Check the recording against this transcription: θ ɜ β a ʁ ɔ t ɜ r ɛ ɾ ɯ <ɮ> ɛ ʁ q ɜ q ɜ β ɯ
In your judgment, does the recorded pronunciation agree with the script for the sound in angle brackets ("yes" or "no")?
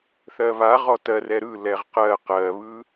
no